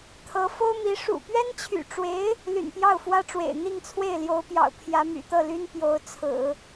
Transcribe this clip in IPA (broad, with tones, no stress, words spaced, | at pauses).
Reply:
t̪ʰɤ˧˥fo˥ʊ̯mi˧˥ ʂṵ˨˩pɥɛ˥nt͡ɕʰy̰˨˩ʈ͡ʂwe˧˥ɪ̯ | ly̰˨˩npjɑ˥˩ʊ̯fwä˥ʈ͡ʂwḛ˨˩ɪ̯ n̪i˥˧ŋt͡sʰwe˥˩ɪ̯ljo˧˥ʊ̯pjɑ̰˨˩ʊ̯ pʰjä˧˥my̰˨˩t̪ɤ˥˩ly˥n pjo˧˥ʊ̯t͡sʰɹ̩˨˩˦